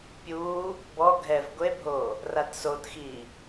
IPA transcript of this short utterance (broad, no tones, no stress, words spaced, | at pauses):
pʲuː | bɔ ɡʱɛv ɡʷebʱoː | ratsotxiː